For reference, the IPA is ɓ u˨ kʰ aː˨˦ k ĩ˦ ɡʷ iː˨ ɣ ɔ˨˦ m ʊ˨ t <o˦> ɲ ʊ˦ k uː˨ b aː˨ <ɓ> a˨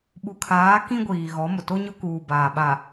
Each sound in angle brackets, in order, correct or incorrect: correct, correct

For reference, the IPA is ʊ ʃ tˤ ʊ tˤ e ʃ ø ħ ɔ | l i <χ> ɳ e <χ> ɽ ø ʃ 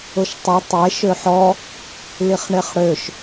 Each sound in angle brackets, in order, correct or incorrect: correct, correct

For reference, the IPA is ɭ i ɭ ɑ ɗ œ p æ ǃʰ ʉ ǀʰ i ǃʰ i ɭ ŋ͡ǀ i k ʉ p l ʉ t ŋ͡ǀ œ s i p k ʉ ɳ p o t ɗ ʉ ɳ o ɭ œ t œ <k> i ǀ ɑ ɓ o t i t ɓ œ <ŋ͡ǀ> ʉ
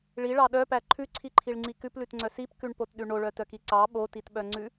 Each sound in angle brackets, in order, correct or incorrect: correct, correct

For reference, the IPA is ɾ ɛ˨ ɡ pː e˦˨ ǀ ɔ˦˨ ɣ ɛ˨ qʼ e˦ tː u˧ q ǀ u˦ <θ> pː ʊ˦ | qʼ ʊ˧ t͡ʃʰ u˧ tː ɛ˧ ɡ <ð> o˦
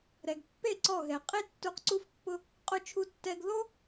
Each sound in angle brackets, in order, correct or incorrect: incorrect, correct

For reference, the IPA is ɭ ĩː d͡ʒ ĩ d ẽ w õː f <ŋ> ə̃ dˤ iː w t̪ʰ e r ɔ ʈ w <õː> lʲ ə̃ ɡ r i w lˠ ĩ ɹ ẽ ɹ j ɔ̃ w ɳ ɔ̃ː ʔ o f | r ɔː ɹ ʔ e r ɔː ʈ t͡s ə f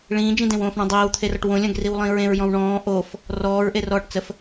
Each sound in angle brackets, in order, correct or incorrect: incorrect, incorrect

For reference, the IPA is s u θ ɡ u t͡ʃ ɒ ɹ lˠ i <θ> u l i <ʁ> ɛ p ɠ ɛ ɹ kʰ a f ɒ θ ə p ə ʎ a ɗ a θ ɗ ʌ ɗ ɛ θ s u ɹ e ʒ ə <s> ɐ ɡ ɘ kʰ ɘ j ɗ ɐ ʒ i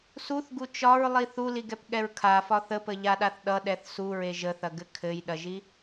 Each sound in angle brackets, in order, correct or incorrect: correct, incorrect, incorrect

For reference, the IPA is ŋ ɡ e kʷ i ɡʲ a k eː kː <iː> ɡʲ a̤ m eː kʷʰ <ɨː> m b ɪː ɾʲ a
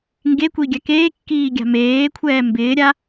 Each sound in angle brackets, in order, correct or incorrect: correct, incorrect

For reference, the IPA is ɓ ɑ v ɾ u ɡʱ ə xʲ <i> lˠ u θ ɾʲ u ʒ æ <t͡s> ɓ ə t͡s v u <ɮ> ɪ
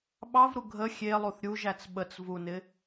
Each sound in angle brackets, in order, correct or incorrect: incorrect, correct, incorrect

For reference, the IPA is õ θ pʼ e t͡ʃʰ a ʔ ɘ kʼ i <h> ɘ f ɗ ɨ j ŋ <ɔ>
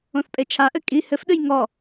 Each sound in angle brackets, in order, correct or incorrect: correct, correct

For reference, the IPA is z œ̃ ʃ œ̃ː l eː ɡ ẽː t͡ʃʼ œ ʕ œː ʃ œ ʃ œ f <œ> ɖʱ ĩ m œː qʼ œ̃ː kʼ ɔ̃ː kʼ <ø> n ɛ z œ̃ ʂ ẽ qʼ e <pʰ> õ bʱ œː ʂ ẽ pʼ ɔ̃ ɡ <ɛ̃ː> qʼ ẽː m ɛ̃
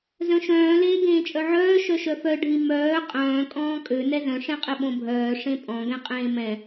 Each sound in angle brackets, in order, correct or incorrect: correct, correct, incorrect, incorrect

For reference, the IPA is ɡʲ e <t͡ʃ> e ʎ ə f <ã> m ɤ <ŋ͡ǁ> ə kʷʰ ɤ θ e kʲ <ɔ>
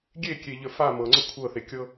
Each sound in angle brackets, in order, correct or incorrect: incorrect, incorrect, incorrect, incorrect

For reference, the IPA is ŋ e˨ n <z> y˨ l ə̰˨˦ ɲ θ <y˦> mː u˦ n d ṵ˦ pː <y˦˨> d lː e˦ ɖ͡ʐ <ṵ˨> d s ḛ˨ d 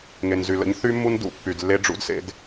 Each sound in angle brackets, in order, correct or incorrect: correct, correct, incorrect, incorrect

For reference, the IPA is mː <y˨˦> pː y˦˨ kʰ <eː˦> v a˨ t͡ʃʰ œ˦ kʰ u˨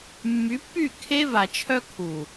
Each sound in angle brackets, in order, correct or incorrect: correct, incorrect

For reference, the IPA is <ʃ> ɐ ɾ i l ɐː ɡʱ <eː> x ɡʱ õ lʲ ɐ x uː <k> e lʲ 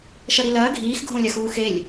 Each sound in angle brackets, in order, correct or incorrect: correct, incorrect, incorrect

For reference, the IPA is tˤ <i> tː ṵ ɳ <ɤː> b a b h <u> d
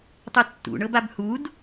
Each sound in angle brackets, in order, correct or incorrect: incorrect, incorrect, correct

